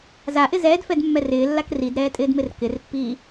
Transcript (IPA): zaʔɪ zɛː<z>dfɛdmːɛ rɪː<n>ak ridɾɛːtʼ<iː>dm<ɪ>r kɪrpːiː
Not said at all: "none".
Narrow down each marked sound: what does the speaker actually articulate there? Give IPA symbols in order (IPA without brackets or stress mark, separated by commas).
none, lː, ɪː, ɪ